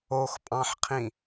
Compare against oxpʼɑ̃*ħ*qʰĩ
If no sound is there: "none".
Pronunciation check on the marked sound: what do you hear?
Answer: ħ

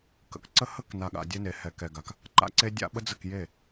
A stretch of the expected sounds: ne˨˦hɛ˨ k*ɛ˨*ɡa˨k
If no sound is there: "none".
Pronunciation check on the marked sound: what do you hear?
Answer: ɛ˨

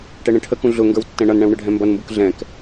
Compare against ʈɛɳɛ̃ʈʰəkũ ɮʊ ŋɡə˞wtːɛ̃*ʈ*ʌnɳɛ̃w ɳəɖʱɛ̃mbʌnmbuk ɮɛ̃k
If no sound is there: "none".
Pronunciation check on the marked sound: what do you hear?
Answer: ɳ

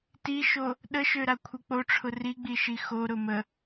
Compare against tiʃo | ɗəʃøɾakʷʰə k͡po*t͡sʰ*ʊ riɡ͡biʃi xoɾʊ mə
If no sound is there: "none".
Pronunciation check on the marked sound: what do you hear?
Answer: ʈ͡ʂʰ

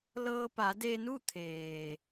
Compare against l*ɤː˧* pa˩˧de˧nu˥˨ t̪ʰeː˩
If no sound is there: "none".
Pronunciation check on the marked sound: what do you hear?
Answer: ɤː˧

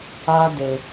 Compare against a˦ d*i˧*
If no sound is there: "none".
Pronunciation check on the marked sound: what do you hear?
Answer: e˧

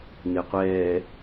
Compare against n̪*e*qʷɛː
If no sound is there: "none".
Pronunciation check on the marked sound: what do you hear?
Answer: e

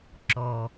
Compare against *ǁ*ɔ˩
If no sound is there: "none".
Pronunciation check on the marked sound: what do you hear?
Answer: ǁ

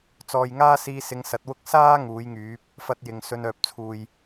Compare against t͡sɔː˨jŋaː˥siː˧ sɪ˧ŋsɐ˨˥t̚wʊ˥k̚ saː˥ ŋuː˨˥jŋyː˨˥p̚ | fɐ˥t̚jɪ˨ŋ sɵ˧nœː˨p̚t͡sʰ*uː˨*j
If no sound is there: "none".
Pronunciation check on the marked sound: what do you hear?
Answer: uː˨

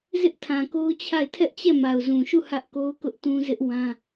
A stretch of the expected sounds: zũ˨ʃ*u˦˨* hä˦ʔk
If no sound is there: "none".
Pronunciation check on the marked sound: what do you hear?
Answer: u˦˨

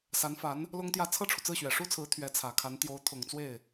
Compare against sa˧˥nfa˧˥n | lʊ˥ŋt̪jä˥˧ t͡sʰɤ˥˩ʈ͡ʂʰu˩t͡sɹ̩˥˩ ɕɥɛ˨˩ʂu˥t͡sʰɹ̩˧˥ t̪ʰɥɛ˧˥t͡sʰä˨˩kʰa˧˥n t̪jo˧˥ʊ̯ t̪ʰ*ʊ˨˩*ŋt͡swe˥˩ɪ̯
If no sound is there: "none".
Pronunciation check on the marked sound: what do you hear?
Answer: ʊ˨˩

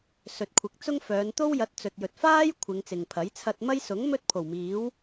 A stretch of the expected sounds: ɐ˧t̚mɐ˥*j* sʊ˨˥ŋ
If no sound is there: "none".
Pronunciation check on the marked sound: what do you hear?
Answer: j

